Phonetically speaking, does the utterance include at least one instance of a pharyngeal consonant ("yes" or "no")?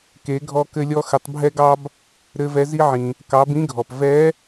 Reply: yes